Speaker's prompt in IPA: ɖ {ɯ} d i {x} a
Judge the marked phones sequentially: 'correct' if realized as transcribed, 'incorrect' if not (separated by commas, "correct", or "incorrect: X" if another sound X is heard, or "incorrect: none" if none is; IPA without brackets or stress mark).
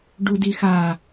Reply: incorrect: u, correct